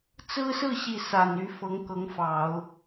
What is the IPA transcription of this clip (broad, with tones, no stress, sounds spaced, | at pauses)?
t͡s ɹ̩˥ s ɹ̩˥˧ ɕ i˥˩ s a˨˩ n y˧˥ f ɤ˧˥ ŋ k ɤ˧˥ ŋ f ɑ˨˩˦ ʊ̯